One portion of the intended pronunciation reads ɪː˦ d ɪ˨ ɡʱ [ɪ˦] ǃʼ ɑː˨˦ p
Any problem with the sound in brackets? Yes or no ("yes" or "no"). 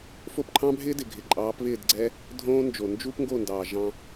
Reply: yes